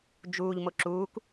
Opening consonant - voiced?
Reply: yes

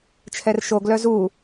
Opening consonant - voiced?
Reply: no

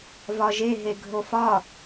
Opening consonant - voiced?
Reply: yes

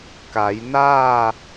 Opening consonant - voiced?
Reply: no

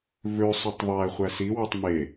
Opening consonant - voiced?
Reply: yes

